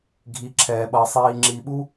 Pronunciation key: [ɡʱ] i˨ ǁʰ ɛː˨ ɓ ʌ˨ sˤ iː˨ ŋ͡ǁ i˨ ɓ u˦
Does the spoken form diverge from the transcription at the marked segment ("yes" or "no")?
no